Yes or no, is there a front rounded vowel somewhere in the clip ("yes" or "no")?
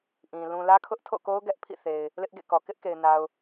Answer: no